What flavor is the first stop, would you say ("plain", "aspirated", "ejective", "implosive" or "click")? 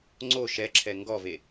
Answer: click